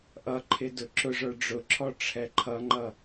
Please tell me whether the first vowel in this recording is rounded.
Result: no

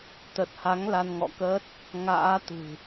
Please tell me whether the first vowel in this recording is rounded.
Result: no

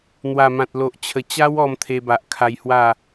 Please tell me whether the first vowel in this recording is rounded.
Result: no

